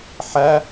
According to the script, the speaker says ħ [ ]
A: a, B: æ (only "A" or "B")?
B